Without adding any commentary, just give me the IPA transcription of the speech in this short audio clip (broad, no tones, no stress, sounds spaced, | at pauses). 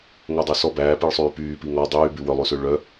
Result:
ŋ o dˤ ø s ɔ b æː p i ɭ sˤ yː p yː p i ŋ ɔ dˤ yː b ʉ w œ lˠ ʉ s ø ɭ œ